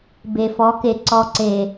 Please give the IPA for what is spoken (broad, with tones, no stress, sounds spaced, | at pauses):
b e˨ f ɔ˨˦ k e˨ ǀ ɔ˨ ǀ e˨